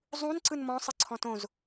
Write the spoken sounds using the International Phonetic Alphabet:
zˤũn ǀɯnmɔ̃ sˤɯǀʰɔ̃tõz

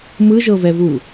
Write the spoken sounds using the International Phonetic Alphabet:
mɯʒɤvɛvu

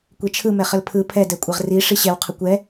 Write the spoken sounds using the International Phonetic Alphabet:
kʷet͡ʃʰɯmɛ χəlpʰɯ pʰɛdɛkʷʼɛʁ ri ʂiɕɛw qʰəkʷɛ

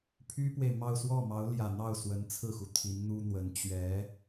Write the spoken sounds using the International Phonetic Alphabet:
pʰy˥pwe˨ɪ̯mɑ˥˧ʊ̯ swɔ˥˩mɑ˧˥ʊ̯ljä˨˩n̪ɑ˥˩ʊ̯ swə˧˥nt͡sʰɹ̩˥˩xu˩ t̪ʰi˧˥nn̪u˥n̪wə˧˥n t͡ɕɥɛ˧˥

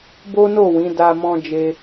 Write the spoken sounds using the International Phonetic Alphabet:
bo˦no˦˨wĩ˨˦ da˧ mɔ̃˧d͡ʒe˧

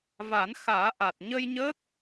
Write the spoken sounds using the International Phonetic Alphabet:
va˨˩˦nxaː˨˩˦ʔa˨˩t̚ ɲə˧jɲə˦˥k̚

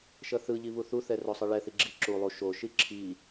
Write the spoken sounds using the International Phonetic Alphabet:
ʃʌθɯʎi βuθuθɛ rosˤɯɭɛθi ɡ͡ǁiǁulˠu ʃoʃi ǁʰi

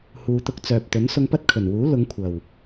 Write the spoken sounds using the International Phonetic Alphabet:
huː˨t̪ʊ˧k̚t͡sœː˨p̚t̪ɵ˨˥n sʊ˧ŋpɐ˥t̚kʰɵ˨˩nwuː˨˥ lʊ˨˧ŋkʷʰɐ˨˩w

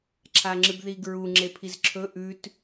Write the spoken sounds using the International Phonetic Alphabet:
ǁʰaŋ͡ǁɨbðiɡɹu ŋ͡ǁepʰizǁʰɵ ʔʉt

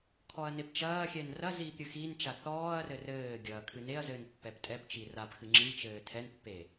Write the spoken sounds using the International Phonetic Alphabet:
kʰɔɐ̯nept͡ʃɐːxʲɛn rɐ ziːpɾʲɨxint͡ʃa θɔːɐ̯rɘ rɘːɡʲɐː kʰɨneɐ̯zɘːn pːɛptʼɛpt͡ʃi rapxɨ ŋ͡ǁit͡ʃɘː tʰɛnpːe

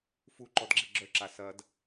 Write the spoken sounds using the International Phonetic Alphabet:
fu ǃɔdɡ͡ǁiɡ͡ǁœ ǁasɐd

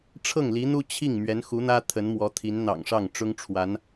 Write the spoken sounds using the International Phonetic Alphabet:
ʈ͡ʂʰɤ˥˩ŋli˧˥n̪u˥ t͡ɕʰi˥˩ŋ mɥɛ˧˥nxu˧˥n̪ä˥ t̪ʰə˧˥nmwɔ˧˥t̪ʰi˧˥n n̪ɑ̰˨˩ŋʂɑ˥˩ŋ ʈ͡ʂʊ˥ŋʈ͡ʂʰwa˧˥n

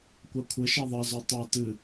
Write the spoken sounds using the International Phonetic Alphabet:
kʷakʷʰɘʃe ðˤæzɔ tˤa tɨ

